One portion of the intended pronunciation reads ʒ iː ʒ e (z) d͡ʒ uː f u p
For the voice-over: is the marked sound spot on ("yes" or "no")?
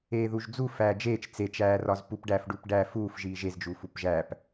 yes